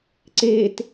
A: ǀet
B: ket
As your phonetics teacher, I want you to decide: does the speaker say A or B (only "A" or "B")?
A